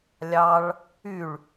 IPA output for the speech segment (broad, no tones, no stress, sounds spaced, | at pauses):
lʲ ɑ ɭ | y ɭ